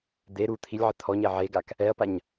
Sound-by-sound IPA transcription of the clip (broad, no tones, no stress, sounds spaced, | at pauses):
d̪ e ɾ u t̪ʰ i lʲ ʕ ɪ t̪ʰ ɔ ɲ ɛ ʕ e ɡ a k | ɛ ɐ̯ p a ɲ